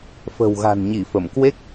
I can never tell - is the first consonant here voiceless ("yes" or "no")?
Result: yes